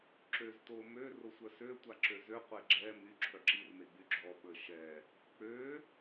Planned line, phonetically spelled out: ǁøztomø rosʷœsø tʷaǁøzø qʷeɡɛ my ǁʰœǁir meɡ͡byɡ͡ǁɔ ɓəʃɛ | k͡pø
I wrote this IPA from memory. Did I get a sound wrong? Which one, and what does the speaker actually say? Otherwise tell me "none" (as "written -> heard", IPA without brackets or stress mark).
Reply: ɡ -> ɡ͡ǁ